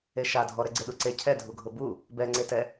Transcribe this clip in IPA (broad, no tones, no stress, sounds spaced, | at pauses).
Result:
e ʃ a dʱ ɔ ɾ ɛ ɡ͡ǀ e ɗ u ǀ e cʰ ɛ dʱ u ɡʱ ʊ b u | b ɛ ŋ͡ǀ e t ɛ